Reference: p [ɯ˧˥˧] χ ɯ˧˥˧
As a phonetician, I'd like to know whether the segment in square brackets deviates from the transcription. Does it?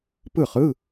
yes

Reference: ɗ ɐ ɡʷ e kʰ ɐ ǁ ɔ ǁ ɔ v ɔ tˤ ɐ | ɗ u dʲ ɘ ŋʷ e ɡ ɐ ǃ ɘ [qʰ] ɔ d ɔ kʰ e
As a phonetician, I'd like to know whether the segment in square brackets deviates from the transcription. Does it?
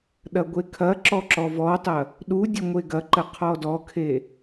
no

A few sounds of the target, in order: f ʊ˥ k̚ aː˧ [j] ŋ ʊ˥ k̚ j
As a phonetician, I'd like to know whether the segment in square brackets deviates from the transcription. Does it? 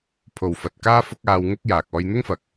yes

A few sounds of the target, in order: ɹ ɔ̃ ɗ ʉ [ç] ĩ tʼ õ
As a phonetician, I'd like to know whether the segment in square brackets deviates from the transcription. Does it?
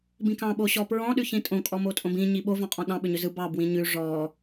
no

